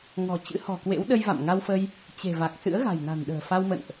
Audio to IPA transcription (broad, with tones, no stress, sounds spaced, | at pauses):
ŋ ɔ̤˨˩ t͡ɕ ɨ̰˧˥ h ɔ̤˨˩ k w ḛ˧˥ w ɗ ə˧ j v a̰˧˨ m ŋ a˧ w f ə˧ j | t͡ɕ e̤˨˩ v a˨˩ k̚ s ɨ̰˧˥ ə̯ ɣ a̤˨˩ j n a̤˨˩ n ɗ ə̤ː˨˩ f a˧ w m ə̰˧˨ n ʔ